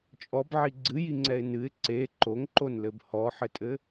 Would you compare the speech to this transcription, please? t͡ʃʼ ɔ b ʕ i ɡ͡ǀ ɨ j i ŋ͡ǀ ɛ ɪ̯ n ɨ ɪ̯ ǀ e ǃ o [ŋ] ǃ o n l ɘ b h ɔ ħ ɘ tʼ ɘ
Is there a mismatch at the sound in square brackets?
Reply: no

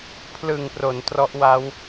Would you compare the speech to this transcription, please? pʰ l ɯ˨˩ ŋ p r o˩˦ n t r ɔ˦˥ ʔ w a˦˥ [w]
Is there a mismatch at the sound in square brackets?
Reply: no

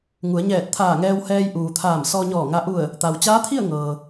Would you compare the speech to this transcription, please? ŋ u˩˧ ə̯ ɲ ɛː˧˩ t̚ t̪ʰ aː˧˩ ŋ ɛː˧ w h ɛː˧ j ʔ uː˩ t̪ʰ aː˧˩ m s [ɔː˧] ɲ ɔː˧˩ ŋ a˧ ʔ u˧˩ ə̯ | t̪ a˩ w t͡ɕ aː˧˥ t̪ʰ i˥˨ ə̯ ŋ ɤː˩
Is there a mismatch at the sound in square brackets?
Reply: no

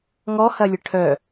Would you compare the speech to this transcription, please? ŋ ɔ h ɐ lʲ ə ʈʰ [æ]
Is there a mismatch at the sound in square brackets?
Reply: yes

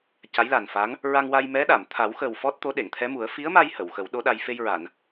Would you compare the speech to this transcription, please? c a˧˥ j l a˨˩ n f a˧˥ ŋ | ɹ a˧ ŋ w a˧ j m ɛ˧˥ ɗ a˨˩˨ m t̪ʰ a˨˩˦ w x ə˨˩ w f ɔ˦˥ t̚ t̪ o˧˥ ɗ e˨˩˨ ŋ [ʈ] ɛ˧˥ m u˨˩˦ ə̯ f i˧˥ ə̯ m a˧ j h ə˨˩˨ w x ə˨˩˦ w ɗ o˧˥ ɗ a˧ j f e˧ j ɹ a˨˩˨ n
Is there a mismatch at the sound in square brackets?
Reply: yes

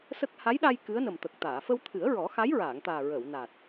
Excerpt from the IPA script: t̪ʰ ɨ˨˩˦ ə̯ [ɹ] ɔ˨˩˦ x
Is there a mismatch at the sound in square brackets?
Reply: no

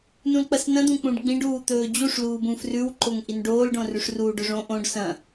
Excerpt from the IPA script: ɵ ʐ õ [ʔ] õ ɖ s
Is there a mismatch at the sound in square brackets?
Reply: no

